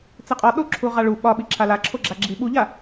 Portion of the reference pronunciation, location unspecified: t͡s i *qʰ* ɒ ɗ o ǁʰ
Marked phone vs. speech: incorrect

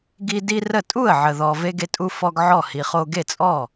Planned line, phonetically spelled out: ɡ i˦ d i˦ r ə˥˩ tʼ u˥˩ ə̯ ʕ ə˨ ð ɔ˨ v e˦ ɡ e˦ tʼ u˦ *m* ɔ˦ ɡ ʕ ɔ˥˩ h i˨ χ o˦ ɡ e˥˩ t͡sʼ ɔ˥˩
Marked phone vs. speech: incorrect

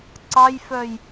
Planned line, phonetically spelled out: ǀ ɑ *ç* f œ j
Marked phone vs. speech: incorrect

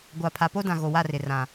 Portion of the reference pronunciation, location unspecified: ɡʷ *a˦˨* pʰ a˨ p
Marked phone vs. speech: incorrect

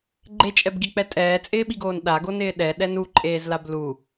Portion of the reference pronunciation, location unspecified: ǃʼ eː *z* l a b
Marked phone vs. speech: correct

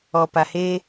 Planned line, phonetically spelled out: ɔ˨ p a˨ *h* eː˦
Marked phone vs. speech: correct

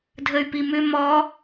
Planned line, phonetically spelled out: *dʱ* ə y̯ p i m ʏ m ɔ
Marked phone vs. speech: correct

